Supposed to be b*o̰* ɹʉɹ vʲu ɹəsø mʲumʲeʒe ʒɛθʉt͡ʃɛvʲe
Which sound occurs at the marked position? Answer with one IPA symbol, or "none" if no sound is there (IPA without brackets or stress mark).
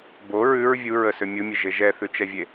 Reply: o